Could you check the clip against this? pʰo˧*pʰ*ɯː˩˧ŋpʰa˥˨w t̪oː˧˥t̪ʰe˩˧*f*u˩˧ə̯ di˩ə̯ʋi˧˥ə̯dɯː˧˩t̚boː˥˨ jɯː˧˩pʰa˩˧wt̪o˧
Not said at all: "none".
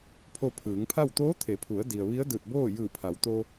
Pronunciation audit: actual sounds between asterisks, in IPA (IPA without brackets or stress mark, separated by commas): pʰ, pʰ